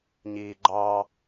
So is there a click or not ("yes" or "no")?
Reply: yes